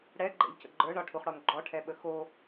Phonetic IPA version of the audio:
ɽ ɛ ɡ͡ǃ ɛ̰ ʎ c ə̰ ɡ͡ǃ ə˞ ɳ ɒ ʈʰ u χ ɽ ɔ n ɡ͡ǃ ɔ ʈʰ ɛ ɓ ə x o

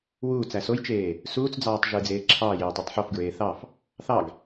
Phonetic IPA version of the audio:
w uː t͡s æ s o j t͡ʃ eː | s uː t͡s d͡z ɑː tˤ ʒ ɯː d͡z eː ǁʰ ɑː j e ɐ̯ tˤ y tˤ ħ o f ɡ ɹ eː θ ɑ f | θ ɑ ɡ

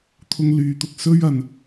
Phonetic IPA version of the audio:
t̪ʰ ʊ˧ ŋ l yː˨˧ t̪ ʊ˨ k̚ s ɵ˥ ɥ ɐ˨ n

